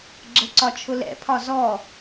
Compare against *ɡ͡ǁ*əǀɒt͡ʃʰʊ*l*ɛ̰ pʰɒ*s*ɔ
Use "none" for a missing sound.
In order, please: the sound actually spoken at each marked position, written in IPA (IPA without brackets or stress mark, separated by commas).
ɡ͡ǁ, l, z